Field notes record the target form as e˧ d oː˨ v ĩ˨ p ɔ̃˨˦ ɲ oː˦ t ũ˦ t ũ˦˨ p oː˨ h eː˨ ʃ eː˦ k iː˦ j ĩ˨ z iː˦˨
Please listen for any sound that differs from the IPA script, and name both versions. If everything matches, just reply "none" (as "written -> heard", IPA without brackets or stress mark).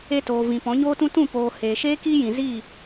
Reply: d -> t